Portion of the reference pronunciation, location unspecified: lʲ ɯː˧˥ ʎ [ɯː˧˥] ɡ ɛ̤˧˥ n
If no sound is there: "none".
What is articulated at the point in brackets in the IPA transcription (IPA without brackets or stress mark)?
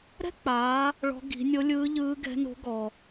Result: ɯː˧˥